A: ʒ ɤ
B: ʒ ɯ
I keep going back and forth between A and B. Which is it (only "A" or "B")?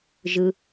B